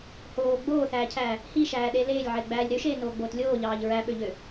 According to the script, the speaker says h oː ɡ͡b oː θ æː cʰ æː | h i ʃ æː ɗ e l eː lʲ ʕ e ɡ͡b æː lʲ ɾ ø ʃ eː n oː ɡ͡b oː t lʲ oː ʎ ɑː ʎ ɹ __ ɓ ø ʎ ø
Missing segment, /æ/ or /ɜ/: æ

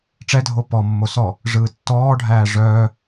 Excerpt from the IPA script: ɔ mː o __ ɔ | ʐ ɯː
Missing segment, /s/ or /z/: s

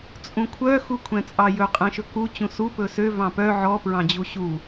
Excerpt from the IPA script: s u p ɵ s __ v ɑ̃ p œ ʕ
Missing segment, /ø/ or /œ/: ø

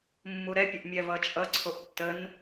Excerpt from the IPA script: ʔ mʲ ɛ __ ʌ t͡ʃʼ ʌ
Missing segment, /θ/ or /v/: v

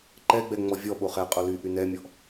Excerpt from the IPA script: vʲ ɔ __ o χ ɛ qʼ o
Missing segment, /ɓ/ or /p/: ɓ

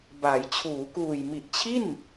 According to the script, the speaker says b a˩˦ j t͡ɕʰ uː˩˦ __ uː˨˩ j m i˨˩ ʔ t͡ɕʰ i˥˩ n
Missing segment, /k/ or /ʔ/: k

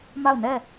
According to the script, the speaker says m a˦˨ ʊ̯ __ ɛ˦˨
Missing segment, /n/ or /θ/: n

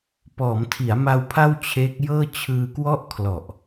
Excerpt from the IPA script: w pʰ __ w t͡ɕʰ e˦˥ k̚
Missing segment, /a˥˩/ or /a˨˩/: a˥˩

